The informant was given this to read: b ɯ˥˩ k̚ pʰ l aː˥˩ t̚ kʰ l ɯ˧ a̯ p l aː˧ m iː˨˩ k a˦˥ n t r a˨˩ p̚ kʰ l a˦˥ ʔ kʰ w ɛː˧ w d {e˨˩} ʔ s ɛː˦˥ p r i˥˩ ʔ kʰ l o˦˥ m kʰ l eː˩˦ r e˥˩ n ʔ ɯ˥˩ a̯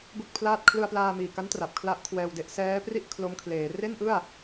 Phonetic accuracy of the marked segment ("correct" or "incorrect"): incorrect